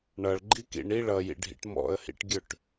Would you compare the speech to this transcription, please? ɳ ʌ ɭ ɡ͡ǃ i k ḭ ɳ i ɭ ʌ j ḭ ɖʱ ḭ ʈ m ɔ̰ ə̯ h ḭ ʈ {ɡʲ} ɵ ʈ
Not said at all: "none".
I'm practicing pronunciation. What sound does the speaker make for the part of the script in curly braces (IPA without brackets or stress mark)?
ɡʲ